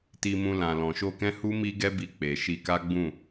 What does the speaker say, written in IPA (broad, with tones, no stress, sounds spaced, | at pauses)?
t i˧ m ũ˧ l ã˨ l ɔ̃˨ ʃ o˧ k ɛ̃˦ h u˦ m i˦ ɡ ɛ˦ b i˧ k͡p e˨ ʃ i˧ k a˦ ɡ͡b ũ˦˨